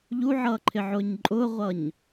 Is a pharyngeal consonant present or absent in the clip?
present